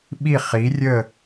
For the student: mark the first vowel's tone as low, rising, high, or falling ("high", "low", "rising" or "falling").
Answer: falling